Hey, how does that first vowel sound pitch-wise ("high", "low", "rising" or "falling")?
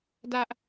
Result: high